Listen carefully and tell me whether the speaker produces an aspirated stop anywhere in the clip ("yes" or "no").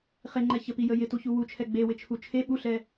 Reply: yes